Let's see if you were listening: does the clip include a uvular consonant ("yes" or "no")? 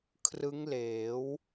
no